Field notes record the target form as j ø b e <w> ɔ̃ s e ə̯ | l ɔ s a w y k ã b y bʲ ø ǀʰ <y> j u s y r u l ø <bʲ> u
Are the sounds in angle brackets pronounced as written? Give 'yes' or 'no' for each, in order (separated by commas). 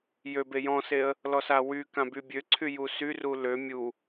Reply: no, yes, no